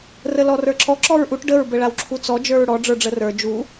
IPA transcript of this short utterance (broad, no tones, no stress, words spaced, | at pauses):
rəlɔrə˞ǁɔ ǁɔɹʔuʈ ɖəɹ bəɭawǁʰut͡sɔ d͡ʒə˞ɹɽɔ ɖ͡ʐə˞ɖ͡ʐərə˞ d͡ʒu